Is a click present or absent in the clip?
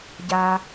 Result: absent